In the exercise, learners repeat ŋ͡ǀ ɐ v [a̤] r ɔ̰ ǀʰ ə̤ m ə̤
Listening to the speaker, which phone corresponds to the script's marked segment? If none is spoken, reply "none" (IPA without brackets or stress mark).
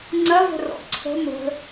ə̤